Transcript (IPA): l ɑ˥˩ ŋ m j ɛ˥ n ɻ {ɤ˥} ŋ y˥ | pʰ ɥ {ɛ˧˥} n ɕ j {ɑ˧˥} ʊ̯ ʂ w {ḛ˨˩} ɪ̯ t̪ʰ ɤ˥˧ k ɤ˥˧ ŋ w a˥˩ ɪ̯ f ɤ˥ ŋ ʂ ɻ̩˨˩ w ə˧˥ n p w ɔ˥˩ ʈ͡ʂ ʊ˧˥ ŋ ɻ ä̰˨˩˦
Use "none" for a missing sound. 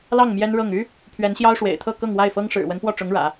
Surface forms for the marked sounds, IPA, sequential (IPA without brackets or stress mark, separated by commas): ɤ˥˩, ɛ˧˥, ɑ˥, ḛ˨˩